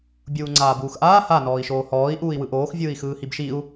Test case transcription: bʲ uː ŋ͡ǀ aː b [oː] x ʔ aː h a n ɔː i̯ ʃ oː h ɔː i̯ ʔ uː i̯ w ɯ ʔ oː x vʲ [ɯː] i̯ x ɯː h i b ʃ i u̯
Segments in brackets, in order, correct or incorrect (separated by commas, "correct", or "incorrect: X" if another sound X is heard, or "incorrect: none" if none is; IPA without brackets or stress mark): incorrect: uː, correct